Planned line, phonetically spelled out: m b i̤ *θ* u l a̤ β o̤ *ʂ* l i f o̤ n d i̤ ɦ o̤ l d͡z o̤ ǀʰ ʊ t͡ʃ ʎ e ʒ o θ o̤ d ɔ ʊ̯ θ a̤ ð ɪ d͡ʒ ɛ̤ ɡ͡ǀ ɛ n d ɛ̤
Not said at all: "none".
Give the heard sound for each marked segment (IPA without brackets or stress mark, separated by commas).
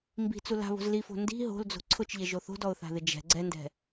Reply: t͡s, z